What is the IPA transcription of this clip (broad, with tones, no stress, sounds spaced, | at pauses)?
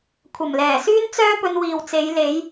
kʷʰ ɐ˨˩ m l ɛː˨˩ s yː˥ n t͡s œː˥ p ɵ˧ n w iː˨ w t͡s e˨˧ j l e˨˧ j